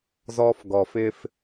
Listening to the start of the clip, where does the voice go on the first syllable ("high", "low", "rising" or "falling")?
high